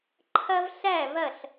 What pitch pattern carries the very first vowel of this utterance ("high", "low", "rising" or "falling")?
high